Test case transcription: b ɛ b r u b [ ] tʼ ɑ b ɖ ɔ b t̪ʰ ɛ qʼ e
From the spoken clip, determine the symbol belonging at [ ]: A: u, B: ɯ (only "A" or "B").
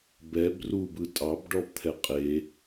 B